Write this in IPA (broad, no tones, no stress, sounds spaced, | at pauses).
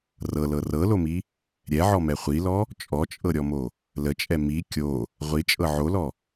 r ɤ l ɤ r ɤ l o m i | ɾʲ ɛ ʕ ɔ m ɛ χʷ i l ɔ | t͡ʃʼ ɔ t͡ʃʼ ɤ ɾʲ ɔ m o | l ə t͡ʃʼ ɛ m i kʲ o | ʁʷ i t͡ʃʼ ɤ ʕ o l ɔ